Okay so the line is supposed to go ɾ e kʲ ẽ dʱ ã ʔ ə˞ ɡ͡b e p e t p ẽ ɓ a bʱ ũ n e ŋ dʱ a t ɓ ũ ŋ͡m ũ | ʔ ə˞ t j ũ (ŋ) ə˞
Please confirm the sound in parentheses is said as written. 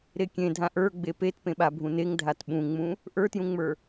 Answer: no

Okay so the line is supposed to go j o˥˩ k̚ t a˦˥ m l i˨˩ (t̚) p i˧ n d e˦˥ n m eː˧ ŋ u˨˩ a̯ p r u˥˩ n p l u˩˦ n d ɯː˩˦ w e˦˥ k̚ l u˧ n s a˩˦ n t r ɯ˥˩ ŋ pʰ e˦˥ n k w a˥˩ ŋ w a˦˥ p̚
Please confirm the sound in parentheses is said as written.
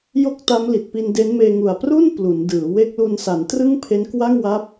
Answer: yes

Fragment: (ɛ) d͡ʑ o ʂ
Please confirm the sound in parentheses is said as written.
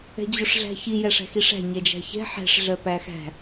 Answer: no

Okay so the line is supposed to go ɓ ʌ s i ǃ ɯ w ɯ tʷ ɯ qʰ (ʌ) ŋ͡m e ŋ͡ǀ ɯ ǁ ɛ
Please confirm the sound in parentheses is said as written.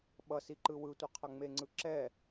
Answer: yes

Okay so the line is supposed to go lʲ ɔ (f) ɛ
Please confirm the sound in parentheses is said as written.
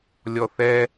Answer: no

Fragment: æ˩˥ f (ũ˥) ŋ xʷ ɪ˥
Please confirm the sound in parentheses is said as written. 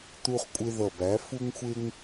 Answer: no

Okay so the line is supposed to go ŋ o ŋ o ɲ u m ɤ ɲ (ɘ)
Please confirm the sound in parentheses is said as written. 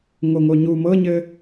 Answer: yes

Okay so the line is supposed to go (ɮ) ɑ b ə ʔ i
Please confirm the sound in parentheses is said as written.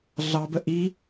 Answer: yes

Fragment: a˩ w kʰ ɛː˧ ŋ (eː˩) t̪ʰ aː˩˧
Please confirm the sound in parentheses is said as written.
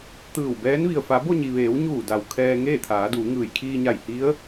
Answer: no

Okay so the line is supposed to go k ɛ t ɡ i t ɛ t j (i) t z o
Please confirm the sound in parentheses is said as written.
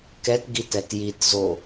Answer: yes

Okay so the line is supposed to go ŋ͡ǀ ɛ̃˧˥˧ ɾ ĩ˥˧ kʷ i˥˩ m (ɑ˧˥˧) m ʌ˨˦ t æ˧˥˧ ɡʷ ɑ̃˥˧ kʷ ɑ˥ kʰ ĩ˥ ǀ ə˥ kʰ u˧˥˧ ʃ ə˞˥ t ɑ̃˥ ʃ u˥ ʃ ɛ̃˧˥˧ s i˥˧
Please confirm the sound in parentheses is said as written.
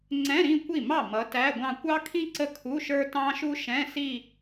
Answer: no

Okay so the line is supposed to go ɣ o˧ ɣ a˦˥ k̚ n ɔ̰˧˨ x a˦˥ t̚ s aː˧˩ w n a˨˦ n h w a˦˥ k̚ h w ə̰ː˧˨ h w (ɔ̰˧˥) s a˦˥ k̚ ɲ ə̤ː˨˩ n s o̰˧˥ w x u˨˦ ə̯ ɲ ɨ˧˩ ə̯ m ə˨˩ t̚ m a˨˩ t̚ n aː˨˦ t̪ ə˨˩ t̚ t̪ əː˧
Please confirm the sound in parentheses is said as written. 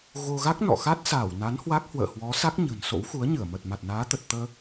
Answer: no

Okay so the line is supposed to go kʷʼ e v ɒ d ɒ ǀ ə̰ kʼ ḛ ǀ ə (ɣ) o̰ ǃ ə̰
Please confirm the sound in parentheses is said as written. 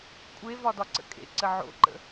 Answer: no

